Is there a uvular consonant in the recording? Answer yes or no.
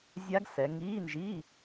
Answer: no